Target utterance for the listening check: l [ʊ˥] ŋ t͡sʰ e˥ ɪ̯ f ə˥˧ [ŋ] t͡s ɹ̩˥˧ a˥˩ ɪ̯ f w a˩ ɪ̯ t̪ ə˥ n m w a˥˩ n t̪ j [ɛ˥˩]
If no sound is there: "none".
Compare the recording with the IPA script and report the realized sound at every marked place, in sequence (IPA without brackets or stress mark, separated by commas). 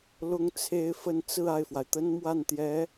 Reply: ʊ˥, n, ɛ˧˥